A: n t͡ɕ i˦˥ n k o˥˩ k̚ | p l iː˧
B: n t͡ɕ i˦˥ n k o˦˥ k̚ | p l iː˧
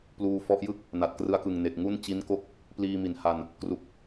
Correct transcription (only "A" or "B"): A